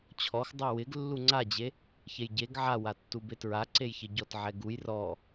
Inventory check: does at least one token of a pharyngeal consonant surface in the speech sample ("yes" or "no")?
yes